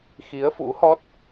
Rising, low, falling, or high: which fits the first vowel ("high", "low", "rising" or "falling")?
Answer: rising